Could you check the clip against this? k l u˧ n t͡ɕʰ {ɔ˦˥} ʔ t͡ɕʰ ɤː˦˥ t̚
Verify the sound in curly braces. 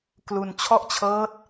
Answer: incorrect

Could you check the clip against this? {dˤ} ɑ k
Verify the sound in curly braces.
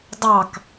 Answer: correct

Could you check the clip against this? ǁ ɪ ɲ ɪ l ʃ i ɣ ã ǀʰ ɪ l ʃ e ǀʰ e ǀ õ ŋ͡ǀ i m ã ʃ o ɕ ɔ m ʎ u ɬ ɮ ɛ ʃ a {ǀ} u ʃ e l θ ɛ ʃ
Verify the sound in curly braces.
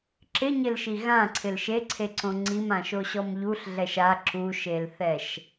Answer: incorrect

